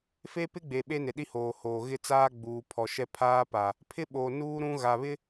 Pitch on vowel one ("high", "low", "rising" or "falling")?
high